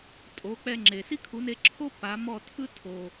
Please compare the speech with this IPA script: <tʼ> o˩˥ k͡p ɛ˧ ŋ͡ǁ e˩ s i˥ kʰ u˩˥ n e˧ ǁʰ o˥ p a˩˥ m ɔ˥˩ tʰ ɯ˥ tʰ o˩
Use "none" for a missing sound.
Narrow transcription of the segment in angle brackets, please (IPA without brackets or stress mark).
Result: tʼ